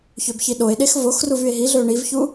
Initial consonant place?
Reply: palatal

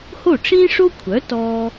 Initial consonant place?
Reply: glottal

